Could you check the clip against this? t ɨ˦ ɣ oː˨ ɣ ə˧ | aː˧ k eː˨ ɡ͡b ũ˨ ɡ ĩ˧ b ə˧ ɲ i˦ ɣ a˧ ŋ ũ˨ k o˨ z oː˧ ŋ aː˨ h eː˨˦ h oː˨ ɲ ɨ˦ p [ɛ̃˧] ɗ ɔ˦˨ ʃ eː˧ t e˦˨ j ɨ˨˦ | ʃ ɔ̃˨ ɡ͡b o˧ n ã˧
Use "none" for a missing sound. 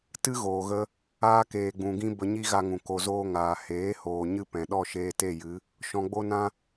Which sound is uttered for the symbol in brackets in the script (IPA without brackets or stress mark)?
ɛ̃˨